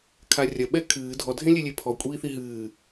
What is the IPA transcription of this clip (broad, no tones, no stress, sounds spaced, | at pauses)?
kʰ a rʲ ɐ ɓ ɛ kʰ ɨː dʱ ɔ dʱ ẽ lʲ e lʲ e pʰ ɔ kʷʼ iː θ i ɦ ɨː